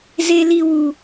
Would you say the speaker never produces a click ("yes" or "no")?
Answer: yes